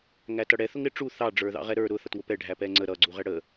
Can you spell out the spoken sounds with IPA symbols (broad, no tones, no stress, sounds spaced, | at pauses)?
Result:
ŋ æ t ʌ ɽ ɛ θ ʊ ŋ ɾ ɪ ʈ͡ʂ u θ ɑ ɖ͡ʐ ə˞ ð ɑ̰ ʁ ɛ ɾ ə˞ ɾ ʊ θ ʌ t w ʊ p ɛ ɖʱ æ p ɛ ŋ͡ǀ ə ɾ ʌ ɡ͡ǀ u ʁ ɛ ɽ ə